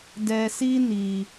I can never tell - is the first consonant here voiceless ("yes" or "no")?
no